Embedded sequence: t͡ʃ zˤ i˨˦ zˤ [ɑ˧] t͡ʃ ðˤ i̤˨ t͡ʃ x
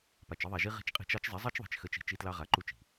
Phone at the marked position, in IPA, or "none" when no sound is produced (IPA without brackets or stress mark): ɑ˦